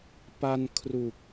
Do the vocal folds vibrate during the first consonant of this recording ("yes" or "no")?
no